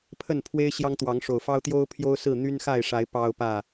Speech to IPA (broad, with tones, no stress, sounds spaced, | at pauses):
pʰ ə˥˨ n pʰ w e˦ ɪ̯ ɕ j ɑ˦ ŋ t̪ w ɑ˨˦ ŋ ʂ o˨˩ ʊ̯ f ɑ˦ ʊ̯ t̪ j o˦ ʊ̯ pʰ j o˦ ʊ̯ s ɹ̩˥˨ n̪ y˦ n x a˥˨ ɪ̯ ʂ a˨˦ ɪ̯ p ɑ˦ ʊ̯ p ä˥˨